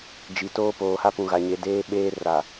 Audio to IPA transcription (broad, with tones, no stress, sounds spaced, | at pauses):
d͡ʒ i˨ t oː˦ p oː˨ h a˦ p ũ˨ ɣ a˨ ɲ e˨ d eː˦ ɓ eː˦ r a˨